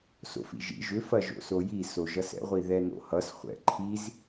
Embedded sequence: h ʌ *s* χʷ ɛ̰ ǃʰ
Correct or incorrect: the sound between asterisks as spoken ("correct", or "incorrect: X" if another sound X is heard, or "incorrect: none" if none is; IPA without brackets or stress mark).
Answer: correct